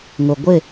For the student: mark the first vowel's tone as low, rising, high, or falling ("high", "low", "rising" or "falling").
low